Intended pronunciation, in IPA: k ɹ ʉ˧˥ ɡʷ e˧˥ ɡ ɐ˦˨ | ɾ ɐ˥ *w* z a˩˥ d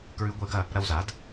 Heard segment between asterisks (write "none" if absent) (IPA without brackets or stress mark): w